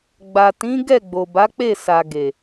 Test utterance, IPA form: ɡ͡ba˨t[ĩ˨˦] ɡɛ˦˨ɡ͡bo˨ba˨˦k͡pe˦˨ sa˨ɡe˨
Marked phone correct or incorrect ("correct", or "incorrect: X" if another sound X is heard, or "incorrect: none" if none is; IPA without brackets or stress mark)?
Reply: correct